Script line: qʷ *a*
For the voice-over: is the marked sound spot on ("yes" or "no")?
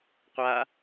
yes